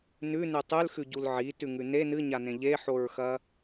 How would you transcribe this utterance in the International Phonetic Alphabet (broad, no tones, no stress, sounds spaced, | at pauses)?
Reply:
n ʉ n ʉ tˤ ʉ l x ʉ ɟ u l ʕ i t ʉ ŋ ʉ n e n ɨ ɲ a n ẽ ʎ e ħ o ɹ x ɐ